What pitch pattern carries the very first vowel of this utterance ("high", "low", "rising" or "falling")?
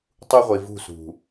high